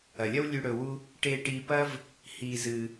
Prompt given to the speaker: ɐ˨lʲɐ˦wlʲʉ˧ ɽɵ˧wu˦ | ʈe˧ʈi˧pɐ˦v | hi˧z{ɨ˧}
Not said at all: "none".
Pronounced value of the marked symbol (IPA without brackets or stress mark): ɨ˧